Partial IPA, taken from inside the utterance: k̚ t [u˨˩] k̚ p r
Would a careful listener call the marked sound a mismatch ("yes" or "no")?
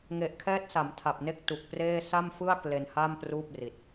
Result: no